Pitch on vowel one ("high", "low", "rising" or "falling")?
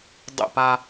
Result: falling